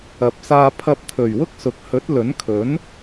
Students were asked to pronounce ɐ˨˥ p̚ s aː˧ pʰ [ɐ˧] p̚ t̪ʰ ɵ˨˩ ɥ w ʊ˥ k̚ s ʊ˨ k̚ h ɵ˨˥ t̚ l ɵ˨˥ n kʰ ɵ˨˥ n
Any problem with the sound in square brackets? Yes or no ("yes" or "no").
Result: no